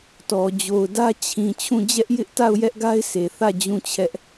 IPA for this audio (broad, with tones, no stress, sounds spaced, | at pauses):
t ɔ˨ d͡ʑ o˨ ʊ̯ d ä˦ t͡ɕʰ ĩ˨ t͡ɕʰ ũ˦˨ d͡ʑ ɛ˦ ʔ j ɪ˦ ʔ t a˦˨ ʊ̯ j ɛ˦ ʔ ɡ a˦ ɪ̯ sʰ e˨ θ ä˦˨ d͡ʑ ũ˦˨ t͡ɕʰ ɛ˦ ʔ